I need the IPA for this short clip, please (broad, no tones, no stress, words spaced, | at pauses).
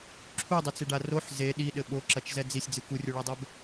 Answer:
ǁʰudˤɘt͡seɖa roħ ze ɗiɗɘ ɓoǁɐt͡ʃzɛ d͡zisʲd͡zɨ kurʲuɭadˤɛb